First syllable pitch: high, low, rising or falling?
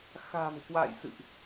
low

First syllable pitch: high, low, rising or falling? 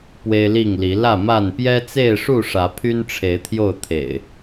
high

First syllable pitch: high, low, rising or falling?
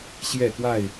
falling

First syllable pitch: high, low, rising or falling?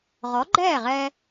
rising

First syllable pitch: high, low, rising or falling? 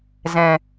low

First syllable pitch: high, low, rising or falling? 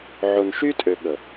low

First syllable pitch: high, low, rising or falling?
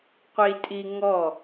high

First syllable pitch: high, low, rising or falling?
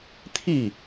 falling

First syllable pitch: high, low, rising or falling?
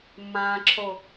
low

